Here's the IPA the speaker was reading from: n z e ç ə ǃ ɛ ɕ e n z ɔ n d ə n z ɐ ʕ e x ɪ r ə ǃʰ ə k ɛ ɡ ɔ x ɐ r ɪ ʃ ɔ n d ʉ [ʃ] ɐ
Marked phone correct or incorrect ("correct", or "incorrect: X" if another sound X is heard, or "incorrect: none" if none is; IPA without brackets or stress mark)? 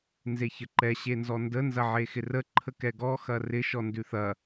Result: incorrect: θ